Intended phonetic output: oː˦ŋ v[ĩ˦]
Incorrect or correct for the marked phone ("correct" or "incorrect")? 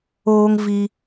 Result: incorrect